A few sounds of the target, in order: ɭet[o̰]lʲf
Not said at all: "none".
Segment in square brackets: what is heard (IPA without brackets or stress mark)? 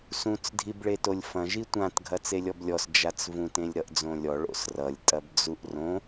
o